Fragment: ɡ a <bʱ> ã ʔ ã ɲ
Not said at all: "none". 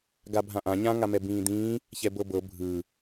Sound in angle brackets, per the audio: bʱ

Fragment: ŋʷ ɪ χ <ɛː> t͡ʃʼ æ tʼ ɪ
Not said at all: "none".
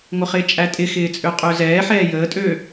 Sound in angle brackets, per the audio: ɪː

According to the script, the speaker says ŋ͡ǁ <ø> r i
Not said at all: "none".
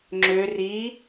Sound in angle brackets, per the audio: ø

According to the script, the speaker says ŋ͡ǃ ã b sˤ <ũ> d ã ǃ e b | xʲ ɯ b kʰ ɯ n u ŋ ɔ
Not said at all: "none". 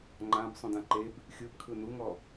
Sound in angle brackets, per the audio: ũ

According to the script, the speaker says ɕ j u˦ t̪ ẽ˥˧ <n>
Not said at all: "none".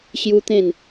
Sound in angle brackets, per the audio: n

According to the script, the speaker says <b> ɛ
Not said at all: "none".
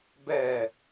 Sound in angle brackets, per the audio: b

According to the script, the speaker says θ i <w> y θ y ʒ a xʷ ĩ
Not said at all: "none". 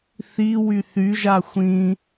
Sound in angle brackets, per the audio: w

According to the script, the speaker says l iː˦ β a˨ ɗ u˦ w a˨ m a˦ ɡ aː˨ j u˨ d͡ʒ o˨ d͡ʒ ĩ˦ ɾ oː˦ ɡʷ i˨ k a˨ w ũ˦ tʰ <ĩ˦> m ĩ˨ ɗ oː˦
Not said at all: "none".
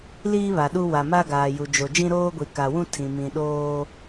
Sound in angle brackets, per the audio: ĩ˨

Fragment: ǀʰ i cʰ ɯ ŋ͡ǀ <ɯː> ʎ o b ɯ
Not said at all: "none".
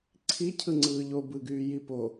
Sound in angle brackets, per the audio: ɯː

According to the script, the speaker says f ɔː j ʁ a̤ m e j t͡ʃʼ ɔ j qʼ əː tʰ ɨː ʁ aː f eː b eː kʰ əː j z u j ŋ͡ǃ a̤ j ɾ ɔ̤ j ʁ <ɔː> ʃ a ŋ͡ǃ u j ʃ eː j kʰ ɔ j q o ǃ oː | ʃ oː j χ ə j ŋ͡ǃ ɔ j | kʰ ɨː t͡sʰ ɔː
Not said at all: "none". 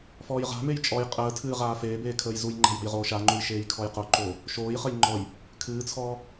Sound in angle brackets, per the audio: oː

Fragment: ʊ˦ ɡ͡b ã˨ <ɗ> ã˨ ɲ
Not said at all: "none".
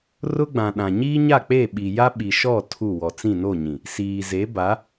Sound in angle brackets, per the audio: ɗ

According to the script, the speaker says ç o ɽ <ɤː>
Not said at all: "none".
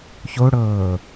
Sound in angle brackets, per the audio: ɤː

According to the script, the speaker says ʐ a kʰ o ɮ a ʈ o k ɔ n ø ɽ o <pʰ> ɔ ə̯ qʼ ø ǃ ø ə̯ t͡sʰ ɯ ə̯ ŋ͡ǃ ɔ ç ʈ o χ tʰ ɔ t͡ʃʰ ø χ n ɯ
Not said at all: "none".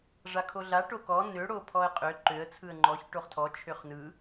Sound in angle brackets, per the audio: pʰ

